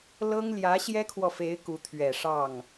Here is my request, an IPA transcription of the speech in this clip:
l ɤ˥ ŋ l j ä˧˥ ɕ j ɛ˥ kʰ w ɔ˨ f e˧˥ ɪ̯ k u˧˥ t̪ʰ ɥ ɛ˨˩ ʂ ɑ˥˩ ŋ

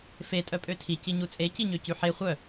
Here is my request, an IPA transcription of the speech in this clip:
f e tʼ œ pʼ ø tʰ i c i ɲ u t͡sʼ e c i ɲ ø c y ħ e χʷ œ

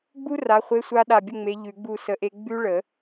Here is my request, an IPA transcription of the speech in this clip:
ɡ͡b u˦˥ r a˨˦ χʷ e˧˥˧ sʷ a˦˥ ɗ a˧˩ bʲ ə˥˨ ŋ͡m e˨˦ ʎ ʉ˨˩˦ ɡ͡b u˥˨ s ə˧˥˧ ʔ e˦˥ ɡ͡b ʉ˦˥ ɭ ə˨˩˦

